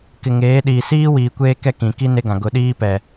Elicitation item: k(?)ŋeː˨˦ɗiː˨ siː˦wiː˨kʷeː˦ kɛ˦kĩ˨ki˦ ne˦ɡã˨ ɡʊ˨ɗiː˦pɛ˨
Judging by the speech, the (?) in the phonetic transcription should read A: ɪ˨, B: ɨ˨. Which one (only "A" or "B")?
A